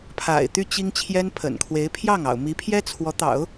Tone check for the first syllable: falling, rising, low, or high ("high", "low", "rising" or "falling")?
low